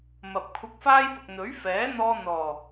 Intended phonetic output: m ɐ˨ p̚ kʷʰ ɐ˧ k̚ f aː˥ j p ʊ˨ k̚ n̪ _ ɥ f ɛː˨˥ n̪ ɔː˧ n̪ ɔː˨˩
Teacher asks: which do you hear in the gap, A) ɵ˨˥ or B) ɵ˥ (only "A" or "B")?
A